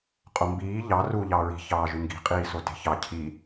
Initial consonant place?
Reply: uvular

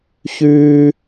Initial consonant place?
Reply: palatal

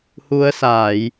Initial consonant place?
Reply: glottal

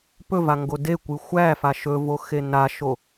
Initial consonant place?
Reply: labial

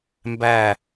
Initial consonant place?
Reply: labial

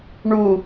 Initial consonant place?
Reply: retroflex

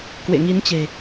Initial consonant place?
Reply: velar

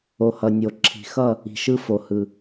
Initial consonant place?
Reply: glottal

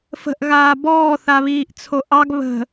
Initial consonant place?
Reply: labial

